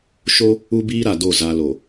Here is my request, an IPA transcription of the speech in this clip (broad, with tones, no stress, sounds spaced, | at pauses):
ʃ o˦ | u˦ b iː˦ ɾ a˨ d o˦˨ z a˦ l o˨